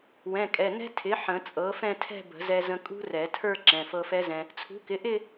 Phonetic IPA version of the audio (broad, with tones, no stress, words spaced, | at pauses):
wɛ̃˩˧˩kʼɛ˩˧˩nɛ̤˦˥ tʰɪ˩˥ ħə̃˨˩˦t͡sʼɤ˩˥fɛ̃˥˧tʰɛ̤˥˧ bə̤˨˩˦zɛ˧zə̃˧ kʼṳ˦˥rɛ˨˩˦ tʰə˞˥˧ ǁɛ̃˩˧˩fɤ˧fɛ˦˥zɛ̃˧ | t͡sʰṳ˩˥kɪ˩˥ʔɪ˥˧